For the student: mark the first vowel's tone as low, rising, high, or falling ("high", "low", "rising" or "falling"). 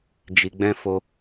low